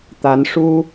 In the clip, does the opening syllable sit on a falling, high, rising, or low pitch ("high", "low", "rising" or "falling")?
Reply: rising